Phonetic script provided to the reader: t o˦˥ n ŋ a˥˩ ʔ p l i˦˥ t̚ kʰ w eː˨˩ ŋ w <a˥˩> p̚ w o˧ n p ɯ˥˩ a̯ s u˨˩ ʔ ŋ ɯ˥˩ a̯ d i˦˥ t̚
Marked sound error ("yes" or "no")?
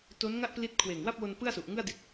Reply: no